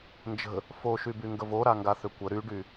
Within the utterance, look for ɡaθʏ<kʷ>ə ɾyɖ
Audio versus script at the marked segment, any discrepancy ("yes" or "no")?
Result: no